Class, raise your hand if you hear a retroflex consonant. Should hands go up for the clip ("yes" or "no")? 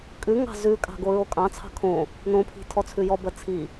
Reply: no